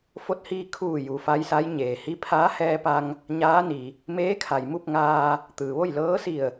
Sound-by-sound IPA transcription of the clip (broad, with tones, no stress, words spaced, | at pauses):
fo˧˥t̚hiː˧ kʰuː˧˩ ju˩fa˧˥jsa˧˥j ɲeː˩hi˧˥pʰaː˧˥ hɛː˧pa˧ŋ | ɲaː˧˥ni˩ | meː˧˥kʰa˩jmu˥˨p̚ŋaː˧ | t̪ɯː˩ʋo˥˨jlɤː˧˥si˧˩ə̯